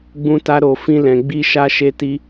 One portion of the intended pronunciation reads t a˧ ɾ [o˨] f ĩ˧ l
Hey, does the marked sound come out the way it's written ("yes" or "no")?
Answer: yes